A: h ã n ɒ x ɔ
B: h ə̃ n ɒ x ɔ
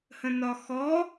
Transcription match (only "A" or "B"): B